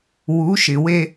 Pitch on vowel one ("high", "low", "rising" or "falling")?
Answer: rising